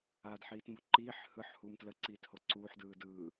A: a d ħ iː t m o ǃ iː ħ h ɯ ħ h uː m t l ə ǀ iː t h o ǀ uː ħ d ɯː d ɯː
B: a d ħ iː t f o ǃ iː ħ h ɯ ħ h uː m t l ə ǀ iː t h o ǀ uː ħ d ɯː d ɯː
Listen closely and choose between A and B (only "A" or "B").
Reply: A